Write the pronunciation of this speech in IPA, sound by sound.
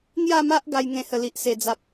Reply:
ŋ j a˥˧ m a˦ ʔ ɡ a˧ j ŋ ẽ˧ h ə˨˩ l i˨ ʔ s e˨˩ d͡z a˦ p̚

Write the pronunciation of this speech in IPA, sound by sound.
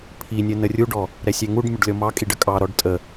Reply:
pʰ i nʲ ə n ə rʲ u ɖ ɔ | ɾ ɛ sʲ ɛ ŋ u ɖ mʲ ə ɖ lʲ ɔ m ɑ kʼ i ɖ ə kʼ ɑ ɾ ɔ ɖ tʼ ə

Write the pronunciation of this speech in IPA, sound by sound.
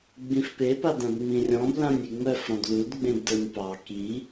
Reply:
ɡ͡b ĩ f p e p a d ã b ŋ͡m ĩ rʲ ɔ̃ b l ã nʲ i ŋ͡m œ f ɾ ɔ̃ d l u d ɡ͡b ẽ b d ə˞ nʲ p ɑ k i

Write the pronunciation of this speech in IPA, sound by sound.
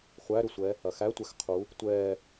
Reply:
χʷ æ ɾ ʏ sʷ ɛː | ɐ x æ tʷ ɛ x qʰ u | tʷ ɛː

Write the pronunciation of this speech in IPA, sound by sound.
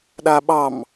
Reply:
ɗ a ɓ ɑ m

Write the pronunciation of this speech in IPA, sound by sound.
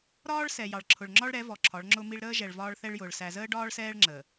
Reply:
ɾ ɒː˦ ɭ s ɛ˨ j ɑ˨ ɭ ǁʰ ʊ˨ ɭ ŋ͡ǁ ɒ˦ ɭ ɾ ɛ˨˦ v ɔ˨ ǁʰ ɒ˨˦ ɭ ŋ͡ǁ ʊ˦ m i˦ ɭ ɾ əː˦ ʒ ɛ˨ ɭ v ɒː˦ ɭ θ ɛ˦ ɭ j ʊː˨ ɭ s æ˨ z əː˦ ɖ ɒː˦ ɭ s ɛː˦ ɭ ŋ͡ǁ əː˨

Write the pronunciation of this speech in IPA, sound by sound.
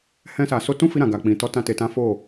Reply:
h ɛ̃˧ s a˨ s o˧ t ũ˦ f i˧ ɾ ã˨ ɡ a˨ k͡p ĩ˨ t ɔ˨˦ t ã˧ t e˨ t ã˨˦ f o˦˨

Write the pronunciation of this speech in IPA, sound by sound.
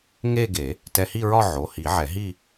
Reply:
ŋ e˥˧ ɡ e˨˩˦ | t ɛ˧ h i˥˧ ɹ ɒ˥˧ ʕ o˩˧˩ h i˨˩˦ ʕ ɛ˨˩˦ ɦ i˥˧

